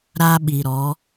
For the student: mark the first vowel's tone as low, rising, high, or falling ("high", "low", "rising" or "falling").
high